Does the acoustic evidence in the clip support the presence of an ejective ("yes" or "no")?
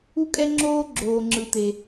yes